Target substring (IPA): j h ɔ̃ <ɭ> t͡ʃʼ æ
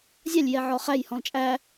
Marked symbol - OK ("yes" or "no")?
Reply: no